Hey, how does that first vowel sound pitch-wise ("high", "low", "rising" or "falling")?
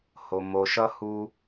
low